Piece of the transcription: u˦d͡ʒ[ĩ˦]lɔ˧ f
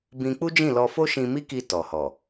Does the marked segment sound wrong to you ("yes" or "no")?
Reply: yes